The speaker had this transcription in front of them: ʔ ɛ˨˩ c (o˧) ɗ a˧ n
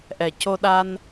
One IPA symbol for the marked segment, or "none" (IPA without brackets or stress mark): o˧